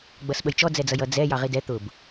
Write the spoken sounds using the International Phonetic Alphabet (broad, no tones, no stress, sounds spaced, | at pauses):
ɡ͡b ʌ s ɓ ə j t͡ʃ ɔ d͡z ɛ d͡z ʌ j ʌ d͡z ɛ j ɑ ʁ i d ɛ t̪ ʊ b